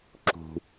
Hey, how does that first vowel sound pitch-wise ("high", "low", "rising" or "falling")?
high